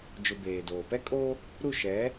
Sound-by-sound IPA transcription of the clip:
d͡ʒʊ˨ beː˨doː˨ pɛ˦kʼo˦ | ɾu˦˨ʃɛ˨˦

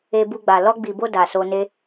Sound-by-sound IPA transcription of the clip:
e˧ bu˧ɡ͡ba˨ lɔ˧ɡ͡bi˨bo˧ da˨ so˧ne˦

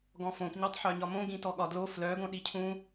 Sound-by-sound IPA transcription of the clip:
ɡɔ̃fõkɲɒtˤħœ ɲɒmõɡĩtɔ ɠɒdlo flœɡõɗi cʰũ

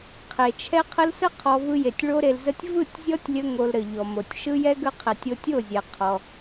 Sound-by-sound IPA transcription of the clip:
qʰe˨t͡ʃʰɛ˦qʰə˦l sə˦ qʰɔ˧ vɯ˧je˨tʲ ɭo˦ɾe˧lzə˦tʲ vɯ˦˨tʲzʲɔ˦tʲlʲə˧ ŋo˧lɾə˨ ʎɔ˨mo˨tʲ ʃɯ˦jɛ˦ɡə˦qʰɛ˨tʲ o˧tʲo˦˨zʲɛ˨ qʰɔ˧

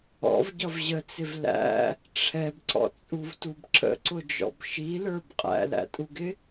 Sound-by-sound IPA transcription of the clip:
ɔ̰vɟʌv ʑət͡sɪv læ̰ | ʈ͡ʂʰɛbǀɔ̰t͡sʼuvtub ǁə̰ǀʊd͡ʒɔ̰b ʃilə˞b qʼæ̰læ̰tʼuɡɪ

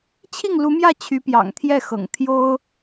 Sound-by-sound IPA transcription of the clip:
t͡ɕʰi˥˩ŋlu˧˥mjä˥˩ t͡ɕʰy˧˥pjɑ̰˨˩ŋt̪ʰjɛ˥˩xɤ̰˨˩ŋ t̪ʰjo˥ʊ̯

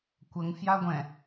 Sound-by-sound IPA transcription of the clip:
kʷəŋ fjaɡʷɛ̃

